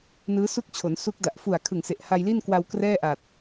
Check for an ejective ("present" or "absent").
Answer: absent